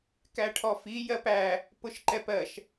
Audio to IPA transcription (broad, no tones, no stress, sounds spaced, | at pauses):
k æ ʈʰ ɔ f i j ɜ p æ | p ʊ ʃ ǃ ɛ p ɜ ʃ